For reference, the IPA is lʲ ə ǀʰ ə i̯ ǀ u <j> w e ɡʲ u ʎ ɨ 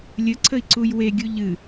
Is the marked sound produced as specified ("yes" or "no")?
yes